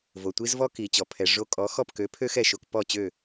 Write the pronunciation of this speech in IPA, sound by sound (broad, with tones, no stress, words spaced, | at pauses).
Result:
vo˩tʷi˥zvɔ˥ ki˩ t͡ɕɔ˩pʰɛ˩ ʐo˧kʼɔ˩˥xɔ˥˩p kø˩˥ pʰø˥xɛ˥˩ʃo˧k pɔ˥˩t͡ɕø˥˩